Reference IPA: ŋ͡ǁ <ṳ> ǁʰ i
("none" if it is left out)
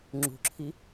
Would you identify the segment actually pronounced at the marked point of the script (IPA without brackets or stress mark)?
ṳ